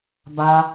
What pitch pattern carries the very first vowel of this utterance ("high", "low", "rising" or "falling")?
high